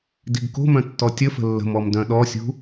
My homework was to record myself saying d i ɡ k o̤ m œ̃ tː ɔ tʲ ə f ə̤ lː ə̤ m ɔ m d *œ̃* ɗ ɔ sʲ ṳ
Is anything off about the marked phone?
no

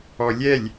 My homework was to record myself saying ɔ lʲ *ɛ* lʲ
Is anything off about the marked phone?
no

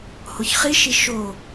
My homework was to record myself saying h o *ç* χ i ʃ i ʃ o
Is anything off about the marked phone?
no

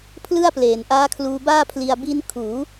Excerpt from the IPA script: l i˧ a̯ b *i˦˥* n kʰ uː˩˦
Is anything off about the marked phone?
no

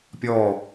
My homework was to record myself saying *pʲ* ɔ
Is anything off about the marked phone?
no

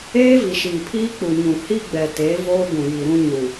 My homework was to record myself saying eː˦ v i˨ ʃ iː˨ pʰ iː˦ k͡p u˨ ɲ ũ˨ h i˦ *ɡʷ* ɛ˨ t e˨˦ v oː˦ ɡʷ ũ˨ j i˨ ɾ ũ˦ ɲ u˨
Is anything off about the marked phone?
yes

